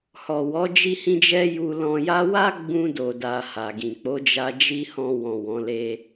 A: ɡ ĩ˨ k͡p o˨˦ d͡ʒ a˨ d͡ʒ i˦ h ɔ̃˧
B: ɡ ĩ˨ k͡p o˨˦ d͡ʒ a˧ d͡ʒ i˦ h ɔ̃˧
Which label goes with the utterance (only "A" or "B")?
B